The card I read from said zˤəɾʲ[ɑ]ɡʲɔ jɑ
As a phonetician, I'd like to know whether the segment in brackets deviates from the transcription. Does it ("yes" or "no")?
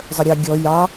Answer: no